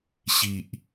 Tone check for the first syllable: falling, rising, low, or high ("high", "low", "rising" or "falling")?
low